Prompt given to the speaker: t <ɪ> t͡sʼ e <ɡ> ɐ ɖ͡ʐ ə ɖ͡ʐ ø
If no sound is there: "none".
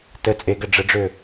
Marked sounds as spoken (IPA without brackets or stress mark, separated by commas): ə, ɡ